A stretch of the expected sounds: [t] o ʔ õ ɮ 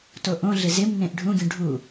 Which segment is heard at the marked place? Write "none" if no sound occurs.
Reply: t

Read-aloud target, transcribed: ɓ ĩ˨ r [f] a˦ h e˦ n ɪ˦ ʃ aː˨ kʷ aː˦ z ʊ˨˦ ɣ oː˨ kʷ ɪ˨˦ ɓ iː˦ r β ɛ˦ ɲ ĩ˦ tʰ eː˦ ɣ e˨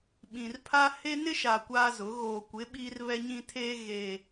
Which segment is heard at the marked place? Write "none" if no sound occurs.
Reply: pʰ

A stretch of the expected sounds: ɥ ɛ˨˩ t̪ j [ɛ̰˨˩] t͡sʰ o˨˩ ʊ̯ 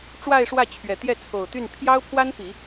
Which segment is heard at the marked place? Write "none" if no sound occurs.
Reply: ɛ˥˩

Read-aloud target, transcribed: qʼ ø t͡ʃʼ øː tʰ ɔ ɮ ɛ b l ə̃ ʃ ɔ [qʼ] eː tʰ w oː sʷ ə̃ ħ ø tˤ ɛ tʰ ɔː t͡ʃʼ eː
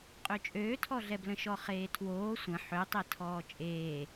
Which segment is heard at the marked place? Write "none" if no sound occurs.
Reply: χ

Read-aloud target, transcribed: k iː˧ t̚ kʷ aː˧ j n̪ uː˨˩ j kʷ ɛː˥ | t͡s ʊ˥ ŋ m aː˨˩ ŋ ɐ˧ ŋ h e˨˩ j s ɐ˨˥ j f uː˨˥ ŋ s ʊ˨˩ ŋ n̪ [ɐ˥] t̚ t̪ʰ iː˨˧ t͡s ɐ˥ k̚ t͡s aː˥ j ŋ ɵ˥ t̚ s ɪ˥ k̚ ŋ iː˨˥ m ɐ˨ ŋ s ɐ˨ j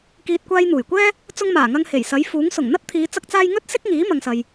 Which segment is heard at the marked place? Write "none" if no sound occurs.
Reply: ɐ˥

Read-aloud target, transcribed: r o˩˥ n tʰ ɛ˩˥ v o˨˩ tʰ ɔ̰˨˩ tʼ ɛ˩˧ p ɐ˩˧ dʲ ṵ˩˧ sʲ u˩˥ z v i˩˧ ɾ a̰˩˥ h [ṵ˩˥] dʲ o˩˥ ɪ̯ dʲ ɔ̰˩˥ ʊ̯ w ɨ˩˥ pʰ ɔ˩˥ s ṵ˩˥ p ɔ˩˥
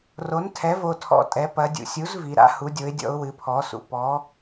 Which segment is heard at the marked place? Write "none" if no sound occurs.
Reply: u˩˥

